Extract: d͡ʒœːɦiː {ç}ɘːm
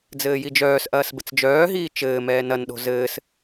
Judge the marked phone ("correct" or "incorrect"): incorrect